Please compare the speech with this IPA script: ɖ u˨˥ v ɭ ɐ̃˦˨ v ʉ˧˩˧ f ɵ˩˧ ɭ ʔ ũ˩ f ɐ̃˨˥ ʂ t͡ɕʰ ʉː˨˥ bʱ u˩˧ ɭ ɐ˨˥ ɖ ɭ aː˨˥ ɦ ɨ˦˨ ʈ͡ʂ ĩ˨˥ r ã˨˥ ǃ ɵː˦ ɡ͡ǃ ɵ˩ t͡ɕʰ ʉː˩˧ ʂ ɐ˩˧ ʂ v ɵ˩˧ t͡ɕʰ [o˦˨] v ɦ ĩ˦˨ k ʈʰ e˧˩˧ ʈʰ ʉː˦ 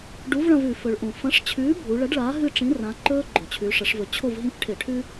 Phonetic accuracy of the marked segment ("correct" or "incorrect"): correct